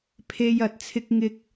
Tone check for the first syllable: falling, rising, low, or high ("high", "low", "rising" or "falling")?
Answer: low